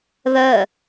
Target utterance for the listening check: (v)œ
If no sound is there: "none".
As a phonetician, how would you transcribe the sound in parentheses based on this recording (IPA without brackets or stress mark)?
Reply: β